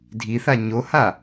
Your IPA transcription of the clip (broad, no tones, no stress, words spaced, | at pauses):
dʱiθa ɲoha